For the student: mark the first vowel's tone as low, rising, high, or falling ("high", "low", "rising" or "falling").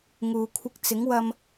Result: low